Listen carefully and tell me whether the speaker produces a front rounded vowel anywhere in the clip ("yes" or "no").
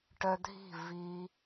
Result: yes